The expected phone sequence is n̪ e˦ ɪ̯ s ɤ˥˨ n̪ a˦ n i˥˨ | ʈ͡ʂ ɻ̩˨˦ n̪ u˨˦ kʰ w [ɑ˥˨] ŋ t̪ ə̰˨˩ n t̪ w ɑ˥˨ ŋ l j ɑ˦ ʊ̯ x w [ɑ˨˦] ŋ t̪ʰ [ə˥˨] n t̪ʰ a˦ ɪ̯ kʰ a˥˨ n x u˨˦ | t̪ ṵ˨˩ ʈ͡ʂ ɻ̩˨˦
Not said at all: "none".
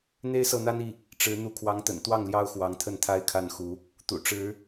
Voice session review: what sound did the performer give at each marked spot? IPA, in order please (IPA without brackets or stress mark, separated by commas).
ɑ˨˦, ɑ˨˦, ə˥˨